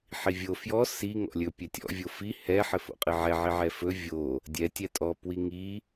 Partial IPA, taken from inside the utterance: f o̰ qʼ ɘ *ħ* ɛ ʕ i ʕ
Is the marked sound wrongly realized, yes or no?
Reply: yes